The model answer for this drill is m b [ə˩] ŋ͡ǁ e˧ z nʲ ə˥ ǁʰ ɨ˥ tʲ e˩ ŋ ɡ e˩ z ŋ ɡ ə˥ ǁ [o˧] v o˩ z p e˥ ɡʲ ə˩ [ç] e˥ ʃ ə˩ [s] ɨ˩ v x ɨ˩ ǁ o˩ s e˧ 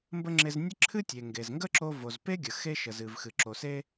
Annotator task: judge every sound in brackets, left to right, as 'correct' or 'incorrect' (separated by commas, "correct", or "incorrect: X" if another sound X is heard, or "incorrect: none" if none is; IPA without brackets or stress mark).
incorrect: ə˥, correct, incorrect: x, incorrect: z